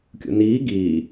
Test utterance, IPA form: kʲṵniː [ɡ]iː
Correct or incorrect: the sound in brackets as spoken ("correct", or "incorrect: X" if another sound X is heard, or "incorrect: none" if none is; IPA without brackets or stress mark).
correct